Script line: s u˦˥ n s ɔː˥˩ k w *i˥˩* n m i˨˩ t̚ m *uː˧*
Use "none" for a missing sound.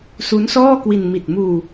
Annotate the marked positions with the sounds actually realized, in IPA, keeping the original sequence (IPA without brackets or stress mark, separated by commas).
i˧, uː˧